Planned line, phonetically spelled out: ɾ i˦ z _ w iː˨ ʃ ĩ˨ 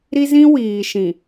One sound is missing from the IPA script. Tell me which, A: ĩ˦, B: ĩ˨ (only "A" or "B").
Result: A